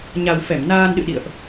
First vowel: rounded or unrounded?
unrounded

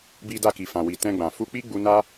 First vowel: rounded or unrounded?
unrounded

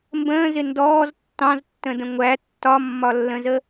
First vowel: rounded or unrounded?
unrounded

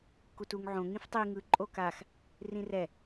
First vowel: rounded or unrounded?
rounded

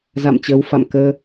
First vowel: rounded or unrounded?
unrounded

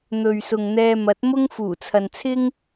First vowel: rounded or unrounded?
rounded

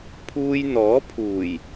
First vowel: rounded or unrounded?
rounded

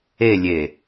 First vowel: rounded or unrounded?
unrounded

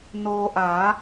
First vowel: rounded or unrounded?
rounded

